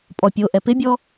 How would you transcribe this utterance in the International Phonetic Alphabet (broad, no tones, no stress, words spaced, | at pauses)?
pʼɔpʲoʔɛ pɪbʲɔ